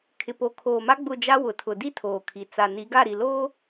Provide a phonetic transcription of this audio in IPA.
kʰɪ˨po˨kʰoː˨ma˦ ɡ͡bʊ˦˨d͡ʒa˦ wʊ˨tʰʊ˨ di˦tʰoː˨kʰi˨ t͡sa˨ni˨˦ɡa˦˨ ɾi˨loː˦

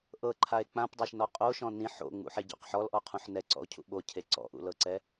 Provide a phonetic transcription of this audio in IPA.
ʔɤǃʰae̯ k͡pãpdˤaʃnɔ qʼoʃɔ̃ nĩ ħo̰ŋ͡mṵħeɟɔ̰q ħɔlʔɔqʰũħ nɛǀɔ̰o̯cʰṵ ɓocʰe ǀɔ̰ʔṵlɤǀɛ

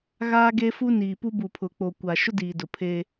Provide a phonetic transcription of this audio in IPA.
ɣaː˦ɡe˦fu˦ niː˨pu˦ bu˨pʰʊ˨k͡po˨kʷa˨ ʃʊ˦diː˨dʊ˨pʰeː˦

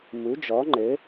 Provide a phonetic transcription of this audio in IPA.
mu˨˥d͡ʒɔ˨˥ŋ͡ǃɘ˨˥

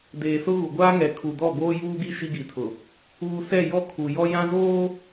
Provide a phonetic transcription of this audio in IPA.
deː˨sʊ˦ ɣu˨ɡʷaː˦ŋɛ˨ kʰu˨dɔ˦˨ ɡoː˦juː˦ɡi˦ ʃi˦ ɡi˨tʰʊ˨ | uː˨ sɛ˦˨jɔ˦ kʰu˨ jɔ˦jã˦zoː˦

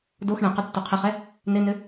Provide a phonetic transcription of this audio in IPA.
dox ɳɛ̃qʊ tːoqʰɪχɛ | nɪnʏ

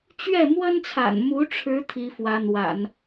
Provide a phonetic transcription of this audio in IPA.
t͡ɕɥɛ˥˩ mwə˥nt͡sʰa̰˨˩nmu˧˥ ʈ͡ʂʰɻ̩˧˥ t̪ʰi˧˥fwä˧˥n̪wa̰˨˩˦n

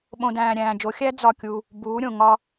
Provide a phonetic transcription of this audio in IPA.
ɓõ˨dæ̃ː˨ ɾʲæ̃ː˨d͡ʒo˨˦ xʲæ˦ d͡zɒ˦˨kʲu˦ | buː˨˦ɾʲõ˨ ŋɒ˦

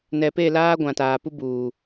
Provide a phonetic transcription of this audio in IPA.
nɛ˨pe˦˨ laː˦ɡʷã˨taː˨ pu˦buː˨

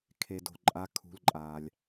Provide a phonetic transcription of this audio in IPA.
kʰe˩ do̤˩ǃʼa˨˥ kʰṳ˩˧˩lǃʼaː˩lʲ

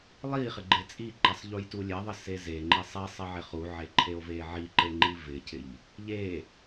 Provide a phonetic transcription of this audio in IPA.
lˠi χɪɡ͡ǃet͡sʼiǃesˤ ʎujtulʲeðˤɪ sezeŋ͡ǃi sˤisˤɪ ʕɪχuʕe ǃʰeo̯veʕiǃe ŋ͡ǃivɪcʰɪʎ | ʎe

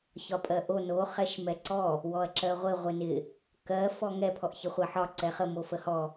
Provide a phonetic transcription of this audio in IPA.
çɒpʼɜʔo no χɛʃmɛǀɔ | wɔɐ̯ǁɜʁʷɪ ʁʷɪnɪ | kɜ fɔŋɛ pʰɔʔçɪχʷɜħɒ ǀɛχə mofəhɔ

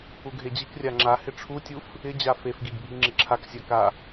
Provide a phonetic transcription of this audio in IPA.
uɡʱed͡ʑikrʲa ŋ͡ǁa hɪʈ͡ʂʰutʲuf | ɪd͡ʑa fefɡiɡ bʱiŋ͡ǁɪǁʰaksʲa ka

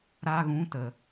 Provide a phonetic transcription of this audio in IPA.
ɾa˧ɣũ˨˦ tə˨

